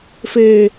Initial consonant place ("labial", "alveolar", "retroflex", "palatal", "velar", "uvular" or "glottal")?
labial